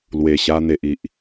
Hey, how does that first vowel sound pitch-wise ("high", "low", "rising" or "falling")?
low